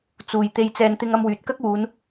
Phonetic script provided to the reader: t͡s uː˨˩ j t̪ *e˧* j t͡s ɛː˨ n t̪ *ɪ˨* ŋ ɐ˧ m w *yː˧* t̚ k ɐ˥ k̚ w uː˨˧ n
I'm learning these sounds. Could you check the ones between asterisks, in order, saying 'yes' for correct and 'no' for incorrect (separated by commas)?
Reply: no, no, no